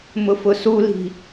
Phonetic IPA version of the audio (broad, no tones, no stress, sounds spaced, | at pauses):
m ʊ f ʊ s u l i̤